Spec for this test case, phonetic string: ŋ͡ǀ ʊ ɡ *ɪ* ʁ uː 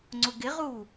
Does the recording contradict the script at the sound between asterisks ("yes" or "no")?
no